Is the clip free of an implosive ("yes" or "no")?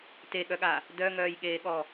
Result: no